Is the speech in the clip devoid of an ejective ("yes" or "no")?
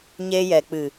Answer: yes